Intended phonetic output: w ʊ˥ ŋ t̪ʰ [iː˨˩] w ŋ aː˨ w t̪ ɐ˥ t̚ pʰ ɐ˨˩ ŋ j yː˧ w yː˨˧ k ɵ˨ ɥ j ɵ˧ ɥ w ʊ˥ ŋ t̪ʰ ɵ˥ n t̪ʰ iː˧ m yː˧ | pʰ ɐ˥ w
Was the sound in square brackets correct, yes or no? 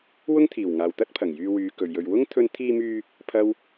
yes